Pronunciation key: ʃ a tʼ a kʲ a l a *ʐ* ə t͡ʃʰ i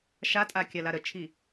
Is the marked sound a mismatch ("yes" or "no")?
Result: yes